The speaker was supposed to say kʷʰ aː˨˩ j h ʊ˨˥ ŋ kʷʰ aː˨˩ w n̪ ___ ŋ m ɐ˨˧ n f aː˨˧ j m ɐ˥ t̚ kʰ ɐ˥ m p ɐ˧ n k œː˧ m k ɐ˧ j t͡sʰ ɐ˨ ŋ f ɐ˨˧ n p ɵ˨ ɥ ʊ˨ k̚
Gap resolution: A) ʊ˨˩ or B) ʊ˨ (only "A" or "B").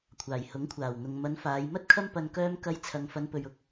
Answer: B